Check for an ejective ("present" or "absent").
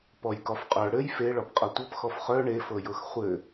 present